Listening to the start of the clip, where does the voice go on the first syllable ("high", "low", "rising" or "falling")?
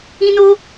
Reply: high